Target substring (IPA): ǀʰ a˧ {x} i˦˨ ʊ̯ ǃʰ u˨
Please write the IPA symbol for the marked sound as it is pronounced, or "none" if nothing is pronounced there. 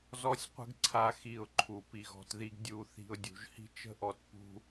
x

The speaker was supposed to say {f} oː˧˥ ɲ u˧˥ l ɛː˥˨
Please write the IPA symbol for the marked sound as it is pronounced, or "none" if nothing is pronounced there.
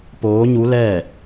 p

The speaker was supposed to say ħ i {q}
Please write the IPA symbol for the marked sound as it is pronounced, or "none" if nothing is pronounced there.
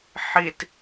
t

